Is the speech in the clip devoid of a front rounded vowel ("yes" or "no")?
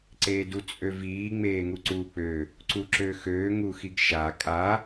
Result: no